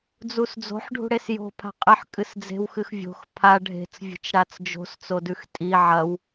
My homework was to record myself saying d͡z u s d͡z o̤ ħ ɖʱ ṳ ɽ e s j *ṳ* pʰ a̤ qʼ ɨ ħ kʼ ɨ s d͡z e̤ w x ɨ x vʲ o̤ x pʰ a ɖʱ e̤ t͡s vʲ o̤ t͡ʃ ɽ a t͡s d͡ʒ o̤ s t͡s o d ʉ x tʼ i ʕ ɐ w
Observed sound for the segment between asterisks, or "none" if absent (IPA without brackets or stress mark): o̤